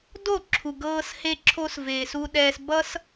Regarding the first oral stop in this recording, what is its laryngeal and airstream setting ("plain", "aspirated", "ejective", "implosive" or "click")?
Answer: plain